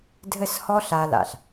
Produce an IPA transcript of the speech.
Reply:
dʱ ɘ˥˩ s h ɔ˥ ɬ a˧ l a̰˩ ɬ

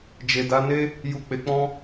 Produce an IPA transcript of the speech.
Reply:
d͡ʒ e˨ d a˨˦ n e˦ | j u˨ k͡p e˨ k͡p ɔ̃˧

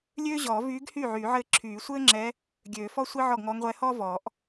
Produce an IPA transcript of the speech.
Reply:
lʲ øː˥ ʑ ɔː˨˩˦ v yː˧˥ ɡ h yː˥˩ ʕ yː˨˩˦ ʕ ɘː˥˩ ǁʰ yː˨˩˦ sʷ ɘː˥ ŋ͡ǁ ɛ˧˥ | ɡʲ øː˨˩˦ f ɔ˥ sʷ i˥ ʕ ɔ˥˩ ɡ ŋ ɔː˧˥ ŋ ʁʷ ɛ˧˥ h ɔː˥ v ɔ˨˩˦ ʔ

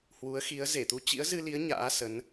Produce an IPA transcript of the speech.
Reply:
h w u˨˦ ə̯ x i˨˦ ə̯ z e˧˩ t̪ u˧ t͡ɕ ḭ˧˥ ə̯ z ɨ˧ l i˨˦ ə̯ ɲ a̰ː˧˥ s ə˨˦ n

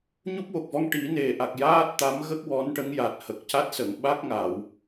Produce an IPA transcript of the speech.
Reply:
ɲ u˦˥ p̚ w o˨˩ k̚ v ɔ˧ ŋ ʈ i˨˩˦ n e˨˩ ʔ a˨˩ k̚ j aː˦˥ t̚ t̪ a˧˥ m ɣ ə˦˥ k̚ w ɔ˧˥ n ʈ ə˧˥ ŋ j a˨˩ t̚ h ə˨˩ k̚ c a˦˥ t̚ s ə˨˩˨ ŋ ɓ a˦˥ k̚ ŋ a˨˩˨ w

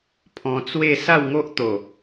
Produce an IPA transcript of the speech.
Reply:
pʰ ɔ̃˧ t͡s w e˥˧ s a˥˧ w ŋ o˦ ʔ t̪ o˨˩

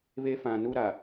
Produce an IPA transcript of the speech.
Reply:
β e˦ f ã˨ n u˦ ɾ a˨

